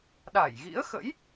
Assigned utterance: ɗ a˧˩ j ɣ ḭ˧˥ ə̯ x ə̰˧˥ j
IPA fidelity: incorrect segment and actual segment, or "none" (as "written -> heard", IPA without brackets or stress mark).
none